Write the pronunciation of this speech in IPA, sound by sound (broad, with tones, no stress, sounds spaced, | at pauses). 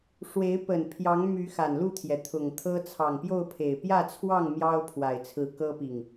ʂ w e˨˦ ɪ̯ p ə˨˩ n pʰ j ɑ˨˦ ŋ m y˨˦ x a˨˩ n l u˥˨ t̪ʰ j ɛ˩ t̪ʰ ʊ˨˩ ŋ t̪ʰ ɤ˦ t͡sʰ ɑ˨˩ ŋ p j o˥˨ ʊ̯ pʰ e˨˩ ɪ̯ p j ä˥˨ t͡sʰ w ɑ˥˨ ŋ m j ɑ˦ ʊ̯ pʰ w a˨˩ ɪ̯ t͡sʰ ɹ̩˨˦ k ɤ˦ p i˨˩ ŋ